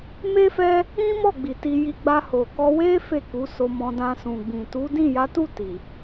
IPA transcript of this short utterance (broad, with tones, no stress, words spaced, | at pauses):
me˦fɛ˦ | ĩ˦mɔ˦˨ɡ͡bi˨ ti˧ji˧ ɡ͡ba˧ho˨kɔ˧ we˦ fe˦˨ku˨˦so˧mɔ̃˧ dã˧sũ˨ ɡ͡bĩ˨tu˨˦ dĩ˦˨ja˨˦tu˦˨ ti˨